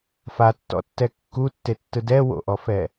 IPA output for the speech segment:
fatːɔ̰tːɛ kːutːetːɯ dɛ wo̰ʔɔfɛ

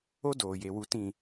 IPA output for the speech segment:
o˦ doː˨je˨wu˨tĩ˨

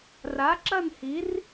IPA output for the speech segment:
ra˨˥ǁɐ˥˧nhi˨˥r

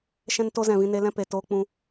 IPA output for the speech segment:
ʃɛ̃˦nto˦ zɛ̃˦˨vĩ˦ ne˧ lɛ̃˦ pe˨toː˧k͡pũ˧

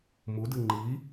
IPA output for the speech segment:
mudɨ ŋ͡ǃi

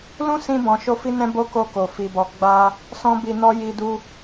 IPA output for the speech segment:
lũ˦sĩ˧ bɔ̃˧ ʃo˦fi˦nɛ̃˦ bo˦ ko˧ ko˨ fi˨bɔ˨ ɡ͡ba˧ | sɔ̃˦bi˧nɔ˦ ji˧du˧

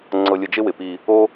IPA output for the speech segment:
ŋ͡ǀɤ˧lʲə˧d͡ʒɪ˦ wɪ˨pi˧ | o˦

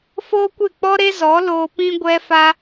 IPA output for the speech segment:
foː˦kʷe˦˨k͡pɔ˦ ɾe˦zɔ˨˦ loː˧pĩ˦ɡʷɛ˦ fa˦

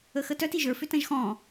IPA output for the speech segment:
əxətœt iʒə˞ fʏtɐ̃ʒxɔ̃

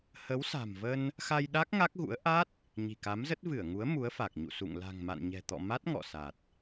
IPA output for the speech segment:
hə˨˦wsa̤˨˩mvə˧n | xa˧jɗa˦˥k̚ ŋa˦˥k̚ɣṵ˧˥ə̯ ʔa˦˥t̚ | ɲi̤˨˩ka˨˦mzə˦˥t̚ vɨ˧˩ə̯ŋu˨˦ə̯ mu˨˦ə̯fa˨˩k̚ ɲṵ˧˨sṵ˧˨ŋ la̤˨˩ŋma̰˧˨nɲɛ̤˨˩t̪ɔ̰˧˨ ma˦˥t̚ŋɔ̰˧˨sa˨˩t̚

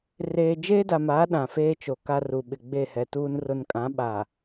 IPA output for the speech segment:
reː˨d͡ʒeː˦da˨maː˨˦ ɗã˨feː˦t͡ʃo˨ ka˦ru˨ ɓɪ˨ɡ͡be˦˨hɛ˨ tuː˨nrʊ˨n kʼã˨˦ɓa˨

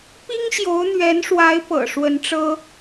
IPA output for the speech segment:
pi˥ŋɕjo˧˥ʊ̯n̪ɥɛ˧˥nʂwa˧˥ɪ̯ pɤ̰˨˩ ʂwə˧˥nʈ͡ʂɤ˥

